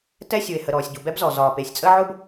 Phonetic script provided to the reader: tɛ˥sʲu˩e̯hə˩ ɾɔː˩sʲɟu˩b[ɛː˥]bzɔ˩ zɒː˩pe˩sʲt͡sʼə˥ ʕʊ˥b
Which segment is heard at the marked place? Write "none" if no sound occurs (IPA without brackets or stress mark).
ɛ˥